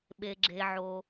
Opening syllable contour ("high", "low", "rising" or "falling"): low